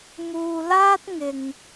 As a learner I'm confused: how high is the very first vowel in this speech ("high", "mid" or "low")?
high